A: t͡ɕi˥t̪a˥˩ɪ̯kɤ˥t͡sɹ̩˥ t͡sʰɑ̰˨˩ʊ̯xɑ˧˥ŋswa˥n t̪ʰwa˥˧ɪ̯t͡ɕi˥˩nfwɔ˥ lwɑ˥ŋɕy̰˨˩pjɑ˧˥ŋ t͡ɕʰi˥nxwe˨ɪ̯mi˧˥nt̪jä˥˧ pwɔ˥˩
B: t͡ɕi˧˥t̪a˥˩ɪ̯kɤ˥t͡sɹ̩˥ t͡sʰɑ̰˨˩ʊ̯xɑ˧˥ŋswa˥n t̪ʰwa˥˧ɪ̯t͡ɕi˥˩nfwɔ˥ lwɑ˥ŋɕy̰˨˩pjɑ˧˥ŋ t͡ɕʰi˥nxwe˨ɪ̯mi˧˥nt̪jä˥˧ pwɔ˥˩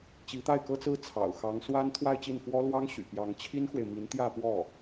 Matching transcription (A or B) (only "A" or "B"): B